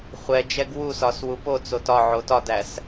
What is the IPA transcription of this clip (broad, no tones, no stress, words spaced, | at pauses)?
χʷɛd͡ʒɛɡ wusɒs wupot͡sot ɒʕo tɒdæs